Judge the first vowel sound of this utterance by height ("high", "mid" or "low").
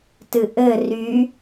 high